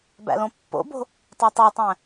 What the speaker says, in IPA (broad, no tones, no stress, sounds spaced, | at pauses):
b æ̰ l õ pː o̰ b o̤ | tˤ æ tˤ æ tˤ æ̃